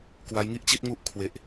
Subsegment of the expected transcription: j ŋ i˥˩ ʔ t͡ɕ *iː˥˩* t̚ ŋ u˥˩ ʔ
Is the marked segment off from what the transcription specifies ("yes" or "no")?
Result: yes